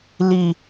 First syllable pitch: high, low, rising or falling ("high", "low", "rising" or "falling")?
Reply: high